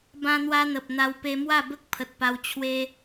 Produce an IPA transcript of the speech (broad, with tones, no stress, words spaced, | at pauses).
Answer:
bã˧n̪wa˧ n̪ə˨p̚n̪a˧w pe˧mwa˥˧ bə˦k̚pʰə˨t̚pa˧w t͡ɕʰwe˦